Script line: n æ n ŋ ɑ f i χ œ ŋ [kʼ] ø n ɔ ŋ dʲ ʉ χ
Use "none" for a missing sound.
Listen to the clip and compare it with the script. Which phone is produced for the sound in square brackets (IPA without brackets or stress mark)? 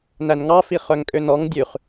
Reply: kʼ